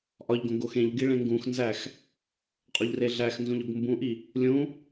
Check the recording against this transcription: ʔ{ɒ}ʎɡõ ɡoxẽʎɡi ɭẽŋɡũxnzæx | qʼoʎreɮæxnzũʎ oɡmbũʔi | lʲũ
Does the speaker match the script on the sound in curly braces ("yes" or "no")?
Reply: yes